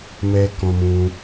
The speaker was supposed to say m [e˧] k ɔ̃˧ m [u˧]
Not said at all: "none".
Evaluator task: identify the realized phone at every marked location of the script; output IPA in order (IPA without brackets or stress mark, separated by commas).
ɛ˧, ũ˧